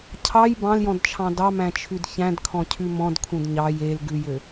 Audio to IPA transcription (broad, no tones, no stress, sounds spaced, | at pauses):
cʰ ɑ j b ɑ̃ l j ɔ̃ d t͡ʃʰ ɑ̃ d ɑ m æ̃ t͡ʃʰ ʉ d ç æ̃ d kʰ ɔ̃ cʰ ʉ m ɔ̃ d kʰ ũ d ɲ ɑ j e l ɡ ʉ j ø